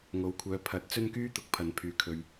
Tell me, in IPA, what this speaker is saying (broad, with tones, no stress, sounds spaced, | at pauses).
ŋ o˨ w kʷʰ œː˨˧ pʰ ɐ˨˥ t̚ t͡s ɵ˥ n k yː˥ t̪ ʊ˨ k̚ pʰ ɐ˨ n pʰ yː˨ kʰ ɵ˨ ɥ